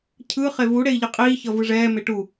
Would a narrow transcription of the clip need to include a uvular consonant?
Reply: yes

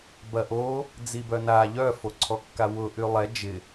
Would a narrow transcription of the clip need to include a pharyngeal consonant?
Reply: no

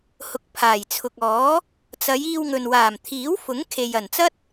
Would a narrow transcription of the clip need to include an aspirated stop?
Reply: yes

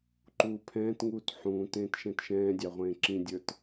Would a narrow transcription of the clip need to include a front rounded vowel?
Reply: no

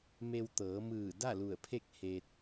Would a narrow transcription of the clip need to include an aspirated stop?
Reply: yes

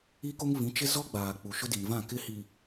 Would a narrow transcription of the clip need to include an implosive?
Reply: no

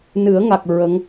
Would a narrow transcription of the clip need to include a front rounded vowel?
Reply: no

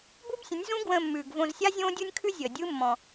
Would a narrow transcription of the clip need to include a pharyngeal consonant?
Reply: no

